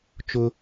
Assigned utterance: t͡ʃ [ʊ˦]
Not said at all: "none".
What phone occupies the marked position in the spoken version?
ʊ˦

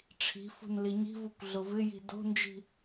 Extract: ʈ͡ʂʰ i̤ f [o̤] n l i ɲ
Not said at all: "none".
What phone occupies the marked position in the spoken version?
ṳ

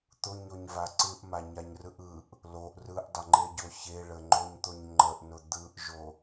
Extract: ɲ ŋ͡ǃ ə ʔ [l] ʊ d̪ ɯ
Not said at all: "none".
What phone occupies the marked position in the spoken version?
n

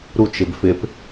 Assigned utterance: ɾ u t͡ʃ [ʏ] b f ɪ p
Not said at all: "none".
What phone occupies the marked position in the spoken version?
ɪ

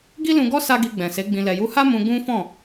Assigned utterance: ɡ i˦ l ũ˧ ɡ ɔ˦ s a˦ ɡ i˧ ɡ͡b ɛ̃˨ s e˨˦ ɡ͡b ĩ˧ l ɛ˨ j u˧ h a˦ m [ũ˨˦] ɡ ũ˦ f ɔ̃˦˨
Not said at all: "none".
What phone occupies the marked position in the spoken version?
ũ˧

